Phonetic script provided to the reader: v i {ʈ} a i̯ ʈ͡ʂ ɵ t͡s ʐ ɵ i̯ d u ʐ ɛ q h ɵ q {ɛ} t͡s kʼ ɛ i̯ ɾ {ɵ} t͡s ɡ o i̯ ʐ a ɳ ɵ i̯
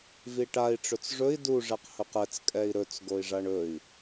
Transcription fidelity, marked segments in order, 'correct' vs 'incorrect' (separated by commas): correct, correct, correct